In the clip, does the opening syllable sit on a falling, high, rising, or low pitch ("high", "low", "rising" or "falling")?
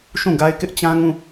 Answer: falling